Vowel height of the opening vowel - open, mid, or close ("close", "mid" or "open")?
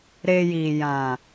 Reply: mid